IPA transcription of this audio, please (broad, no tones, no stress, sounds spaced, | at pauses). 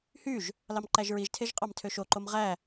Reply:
h y ʒ | l ɑ m ǃ æ ʒ ɹ i ʒ tʰ e ʒ qʼ ɑ m tʰ ø ʃ o ǃ o m ʁ æ